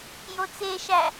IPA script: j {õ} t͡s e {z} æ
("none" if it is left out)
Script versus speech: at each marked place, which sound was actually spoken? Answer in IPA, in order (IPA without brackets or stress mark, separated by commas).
o, ʃ